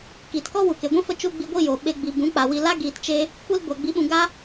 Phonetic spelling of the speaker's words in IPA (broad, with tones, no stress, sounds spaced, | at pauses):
k iː˨ t k ɔ˦ w u˨ k e˨ ɡʷ ĩ˦ f ə˧ t͡ʃ u˦ ɡ͡b i˧ ɡʷ i˦˨ j o˨ ɓ e˧ ɡ͡b i˨ b ũ˨˦ k͡p a˨ w i˧ l a˦ ɡ iː˨ t t͡ʃ e˧ | kʷ i˦ l ɡʷ a˨ ɡ͡b i˨˦ ɓ ũ˨ ɡ a˦